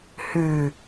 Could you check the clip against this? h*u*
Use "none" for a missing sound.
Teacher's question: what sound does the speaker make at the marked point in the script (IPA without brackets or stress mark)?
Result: ʉ